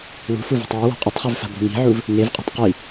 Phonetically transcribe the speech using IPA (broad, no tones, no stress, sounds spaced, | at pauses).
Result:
w ṳ f u v o̤ tˤ w ɨ w a̤ qʼ ɵ tˤ χ ʉ v f a̤ b o̤ ŋ i̤ ʕ u v | ŋ e v qʼ e̤ tˤ q i